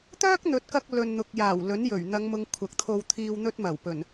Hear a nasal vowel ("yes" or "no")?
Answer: no